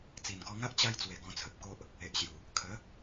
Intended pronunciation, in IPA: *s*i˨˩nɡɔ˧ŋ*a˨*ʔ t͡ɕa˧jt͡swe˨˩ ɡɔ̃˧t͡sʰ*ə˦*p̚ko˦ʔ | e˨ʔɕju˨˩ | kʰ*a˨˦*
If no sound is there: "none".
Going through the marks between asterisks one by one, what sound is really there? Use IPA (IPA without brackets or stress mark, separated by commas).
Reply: t͡s, a˦, ə˨, ə˨˦